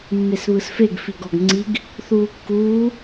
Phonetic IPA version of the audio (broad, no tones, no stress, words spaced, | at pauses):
mːesβɯsfeɡ fiɡɔɡŋ͡ǀiɡ | θuːkːuː